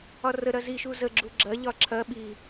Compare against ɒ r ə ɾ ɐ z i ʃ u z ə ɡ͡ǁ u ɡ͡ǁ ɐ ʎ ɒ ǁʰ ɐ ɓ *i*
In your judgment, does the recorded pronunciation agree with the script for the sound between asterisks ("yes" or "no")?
yes